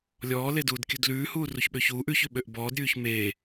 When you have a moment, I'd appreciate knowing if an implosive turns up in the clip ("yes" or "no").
yes